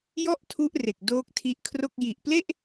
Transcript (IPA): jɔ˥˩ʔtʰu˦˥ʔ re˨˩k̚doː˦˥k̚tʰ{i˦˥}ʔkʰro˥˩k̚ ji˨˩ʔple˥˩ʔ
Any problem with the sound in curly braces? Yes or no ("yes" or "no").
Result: no